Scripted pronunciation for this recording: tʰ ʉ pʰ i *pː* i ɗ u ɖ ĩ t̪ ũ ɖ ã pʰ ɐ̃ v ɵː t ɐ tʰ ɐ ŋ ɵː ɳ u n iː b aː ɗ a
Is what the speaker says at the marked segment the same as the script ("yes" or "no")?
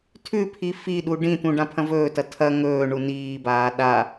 no